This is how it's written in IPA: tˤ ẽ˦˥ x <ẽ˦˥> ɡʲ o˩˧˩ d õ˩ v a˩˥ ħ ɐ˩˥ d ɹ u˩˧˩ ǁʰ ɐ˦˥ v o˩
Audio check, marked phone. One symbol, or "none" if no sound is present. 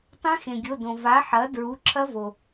ẽ˩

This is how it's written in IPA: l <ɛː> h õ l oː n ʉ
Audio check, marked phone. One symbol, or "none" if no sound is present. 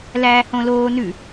æː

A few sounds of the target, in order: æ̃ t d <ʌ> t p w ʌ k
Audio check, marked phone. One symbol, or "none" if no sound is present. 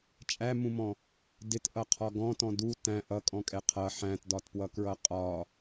ɒ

